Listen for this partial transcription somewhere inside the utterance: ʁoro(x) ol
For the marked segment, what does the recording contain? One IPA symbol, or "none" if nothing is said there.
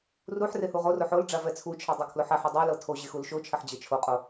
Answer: ħ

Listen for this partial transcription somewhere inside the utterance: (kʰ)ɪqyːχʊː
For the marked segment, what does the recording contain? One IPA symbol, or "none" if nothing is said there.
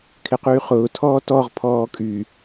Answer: kʰ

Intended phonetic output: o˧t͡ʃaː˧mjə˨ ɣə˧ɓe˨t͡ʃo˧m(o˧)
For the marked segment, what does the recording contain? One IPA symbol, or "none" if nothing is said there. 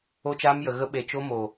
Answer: o˨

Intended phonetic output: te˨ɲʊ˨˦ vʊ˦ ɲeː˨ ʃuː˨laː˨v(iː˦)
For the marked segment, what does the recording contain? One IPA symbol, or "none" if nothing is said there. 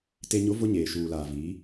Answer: iː˨˦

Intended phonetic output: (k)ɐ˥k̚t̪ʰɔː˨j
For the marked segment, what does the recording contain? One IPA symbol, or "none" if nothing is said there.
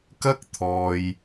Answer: k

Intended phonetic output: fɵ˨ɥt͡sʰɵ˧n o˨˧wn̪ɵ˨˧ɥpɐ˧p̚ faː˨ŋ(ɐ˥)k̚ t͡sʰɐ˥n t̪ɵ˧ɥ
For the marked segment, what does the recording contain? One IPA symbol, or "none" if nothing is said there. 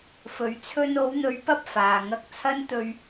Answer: ɐ˧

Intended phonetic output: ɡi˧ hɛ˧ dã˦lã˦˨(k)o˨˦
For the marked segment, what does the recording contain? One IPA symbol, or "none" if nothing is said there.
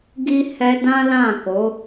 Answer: k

